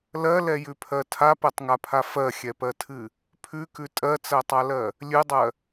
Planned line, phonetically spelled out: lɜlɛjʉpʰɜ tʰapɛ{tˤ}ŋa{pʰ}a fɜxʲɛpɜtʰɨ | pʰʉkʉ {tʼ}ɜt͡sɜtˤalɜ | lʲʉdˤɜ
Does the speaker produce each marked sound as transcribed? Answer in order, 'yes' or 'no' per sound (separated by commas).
yes, yes, yes